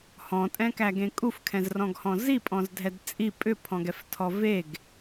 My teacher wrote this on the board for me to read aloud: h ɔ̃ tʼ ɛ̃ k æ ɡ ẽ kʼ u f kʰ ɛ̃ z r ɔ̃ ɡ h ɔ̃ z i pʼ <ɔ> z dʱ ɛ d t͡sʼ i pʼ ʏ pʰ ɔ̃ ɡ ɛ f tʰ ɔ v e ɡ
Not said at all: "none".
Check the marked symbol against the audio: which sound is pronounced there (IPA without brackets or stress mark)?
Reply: ɔ̃